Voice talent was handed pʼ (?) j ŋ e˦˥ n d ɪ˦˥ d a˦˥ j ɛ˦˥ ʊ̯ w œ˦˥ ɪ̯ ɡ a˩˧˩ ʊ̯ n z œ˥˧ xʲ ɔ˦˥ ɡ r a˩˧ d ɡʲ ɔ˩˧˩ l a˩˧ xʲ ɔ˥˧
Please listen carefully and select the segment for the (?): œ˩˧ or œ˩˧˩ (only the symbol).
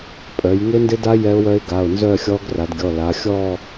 œ˩˧